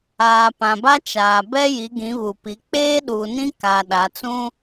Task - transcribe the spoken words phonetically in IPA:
aː˨ pã˨ba˦t͡ʃaː˨ bɛ˦ ji˨˦ɡĩ˨˦ βu˨pi˨˦ k͡peː˦ɗuː˨nĩ˦kaː˨ ɗa˨˦ t͡sũ˦

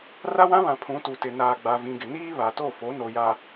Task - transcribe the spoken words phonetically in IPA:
ra˦wã˦βã˨ pʰũ˨˦tu˨tɪ˨ naː˨ɡ͡ba˨vĩ˨ɡɪ˨ niː˦βa˨to˦˨fo˨˦ no˨ja˨

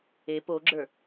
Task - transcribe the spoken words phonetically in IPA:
e poɡ͡ǁə˞

